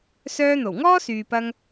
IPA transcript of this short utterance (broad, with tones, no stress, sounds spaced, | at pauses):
s œː˧ n̪ o˨˩ w ŋ ɔː˥ s yː˨ p ɐ˧ ŋ